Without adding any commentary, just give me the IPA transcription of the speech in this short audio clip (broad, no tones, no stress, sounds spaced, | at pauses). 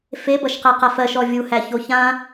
f e b ʌ ʃ q æ q a f ɜ ʃ ɔ vʲ u h æ ç o ç ã